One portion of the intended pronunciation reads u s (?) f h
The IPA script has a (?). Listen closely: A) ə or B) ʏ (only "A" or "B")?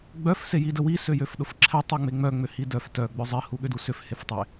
B